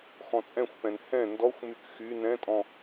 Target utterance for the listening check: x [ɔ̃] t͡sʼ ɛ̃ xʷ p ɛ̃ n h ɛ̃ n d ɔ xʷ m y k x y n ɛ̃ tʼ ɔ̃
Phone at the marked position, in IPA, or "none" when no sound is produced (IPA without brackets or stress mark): ɔ̃